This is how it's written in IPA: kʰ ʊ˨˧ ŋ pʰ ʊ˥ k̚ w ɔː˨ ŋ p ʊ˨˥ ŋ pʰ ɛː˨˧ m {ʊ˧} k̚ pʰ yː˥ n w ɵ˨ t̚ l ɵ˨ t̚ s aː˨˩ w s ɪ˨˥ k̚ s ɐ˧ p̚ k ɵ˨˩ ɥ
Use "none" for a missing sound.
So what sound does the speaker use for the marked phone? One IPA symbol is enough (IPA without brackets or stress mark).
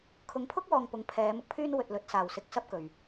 ʊ˧